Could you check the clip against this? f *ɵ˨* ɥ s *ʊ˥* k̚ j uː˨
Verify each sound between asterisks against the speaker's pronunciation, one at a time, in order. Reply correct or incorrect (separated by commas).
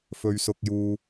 correct, incorrect